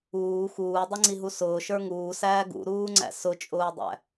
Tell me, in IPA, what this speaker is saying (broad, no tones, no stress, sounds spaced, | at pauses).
uː x uː dˤ ʌ ŋ͡ǀ i ɦ u s ʊː ʃ ə˞ ŋ uː s æː ɡ ṵ ɾ uː ŋ͡ǀ æ̰ s ʊ t͡ʃʼ ʊː dˤ æ̰